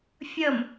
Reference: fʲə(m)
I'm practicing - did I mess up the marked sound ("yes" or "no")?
no